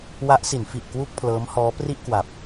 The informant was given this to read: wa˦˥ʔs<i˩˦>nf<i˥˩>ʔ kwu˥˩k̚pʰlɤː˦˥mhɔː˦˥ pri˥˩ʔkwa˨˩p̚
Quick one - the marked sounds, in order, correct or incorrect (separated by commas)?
correct, incorrect